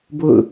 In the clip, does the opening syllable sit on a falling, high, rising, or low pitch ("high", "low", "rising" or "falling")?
falling